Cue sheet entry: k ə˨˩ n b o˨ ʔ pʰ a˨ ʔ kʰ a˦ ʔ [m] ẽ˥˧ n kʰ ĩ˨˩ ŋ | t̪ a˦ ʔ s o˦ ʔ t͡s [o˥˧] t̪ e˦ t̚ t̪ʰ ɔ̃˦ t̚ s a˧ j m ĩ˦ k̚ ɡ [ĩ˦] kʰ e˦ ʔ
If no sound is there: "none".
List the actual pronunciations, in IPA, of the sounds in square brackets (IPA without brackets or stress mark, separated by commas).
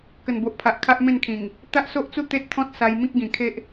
m, u˥˧, ĩ˨˩